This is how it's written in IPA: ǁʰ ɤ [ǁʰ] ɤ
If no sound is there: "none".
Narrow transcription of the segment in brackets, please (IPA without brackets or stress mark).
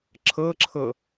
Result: ǁʰ